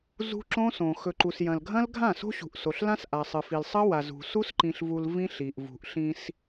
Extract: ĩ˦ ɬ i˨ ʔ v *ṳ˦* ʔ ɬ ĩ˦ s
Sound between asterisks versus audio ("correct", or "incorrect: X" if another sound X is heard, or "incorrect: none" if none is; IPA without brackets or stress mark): incorrect: ṳ˨